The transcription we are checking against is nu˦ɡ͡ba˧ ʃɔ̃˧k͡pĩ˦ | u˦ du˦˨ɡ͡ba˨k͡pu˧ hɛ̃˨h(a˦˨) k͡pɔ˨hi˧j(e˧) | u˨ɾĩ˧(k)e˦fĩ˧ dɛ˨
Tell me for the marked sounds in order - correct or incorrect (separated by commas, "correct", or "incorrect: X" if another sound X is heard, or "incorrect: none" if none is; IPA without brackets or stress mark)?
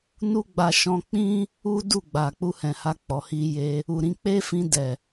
incorrect: a˧, correct, incorrect: k͡p